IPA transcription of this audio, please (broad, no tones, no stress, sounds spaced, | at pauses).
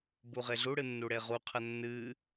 b u ʁ e ɮ u ɽ ɨ nː u ɽ e ʁ u qʰ ɐ nː ɨ